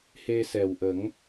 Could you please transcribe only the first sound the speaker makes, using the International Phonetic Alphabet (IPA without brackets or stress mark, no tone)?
h